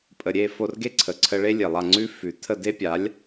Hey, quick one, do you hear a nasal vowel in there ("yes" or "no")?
no